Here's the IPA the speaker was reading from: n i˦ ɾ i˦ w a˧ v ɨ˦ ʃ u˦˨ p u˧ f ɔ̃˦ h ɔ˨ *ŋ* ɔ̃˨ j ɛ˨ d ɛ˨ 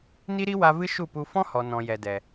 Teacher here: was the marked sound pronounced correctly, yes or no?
no